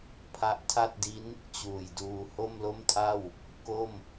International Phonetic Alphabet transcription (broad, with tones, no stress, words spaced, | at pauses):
pʰa˦˥ʔtʰa˥˩t̚di˦˥n | t͡ɕuː˨˩jduː˧ ho˥˩mlo˥˩mtʰa˥˩w | ko˥˩m